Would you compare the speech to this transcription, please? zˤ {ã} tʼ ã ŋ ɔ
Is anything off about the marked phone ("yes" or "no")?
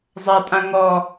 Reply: yes